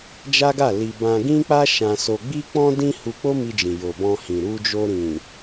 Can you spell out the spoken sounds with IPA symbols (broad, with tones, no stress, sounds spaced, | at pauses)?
d͡ʒ a˦ ɡ a˦˨ l i˧ b ã˧ ɡ ĩ˦ k͡p a˦ ʃ ã˧ s o˧ ɡ͡b i˦ k͡p ɔ̃˦ d ĩ˧ h u˧ k͡p o˦ m i˧ d͡ʒ ĩ˨ j o˨ b ɔ̃˧ h ĩ˨ ɾ u˧ d͡ʒ o˧ ɾ ĩ˨